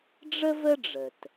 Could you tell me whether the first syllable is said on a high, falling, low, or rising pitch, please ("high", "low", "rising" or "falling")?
high